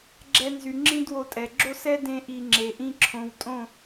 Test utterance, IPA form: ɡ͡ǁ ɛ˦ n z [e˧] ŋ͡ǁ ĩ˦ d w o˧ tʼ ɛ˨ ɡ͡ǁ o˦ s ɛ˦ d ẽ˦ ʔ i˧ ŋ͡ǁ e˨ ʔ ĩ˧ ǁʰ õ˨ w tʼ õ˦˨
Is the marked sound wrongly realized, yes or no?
yes